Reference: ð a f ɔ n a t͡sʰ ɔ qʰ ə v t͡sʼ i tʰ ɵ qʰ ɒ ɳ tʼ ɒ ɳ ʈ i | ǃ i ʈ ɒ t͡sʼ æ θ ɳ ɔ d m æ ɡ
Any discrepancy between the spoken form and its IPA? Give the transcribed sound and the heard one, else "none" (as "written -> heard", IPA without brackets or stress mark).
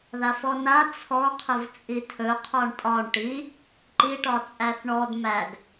none